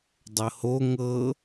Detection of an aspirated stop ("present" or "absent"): absent